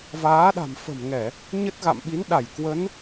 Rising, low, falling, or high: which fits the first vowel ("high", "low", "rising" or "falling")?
rising